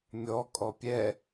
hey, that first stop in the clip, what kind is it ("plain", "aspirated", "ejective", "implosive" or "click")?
ejective